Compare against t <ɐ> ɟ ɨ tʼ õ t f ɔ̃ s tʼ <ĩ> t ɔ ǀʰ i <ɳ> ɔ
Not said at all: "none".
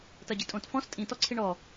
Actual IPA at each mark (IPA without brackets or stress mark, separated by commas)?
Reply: ɐ, ĩ, ɳ